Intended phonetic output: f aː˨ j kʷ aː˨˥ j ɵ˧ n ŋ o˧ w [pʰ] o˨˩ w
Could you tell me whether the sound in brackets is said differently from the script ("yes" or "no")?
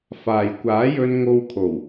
yes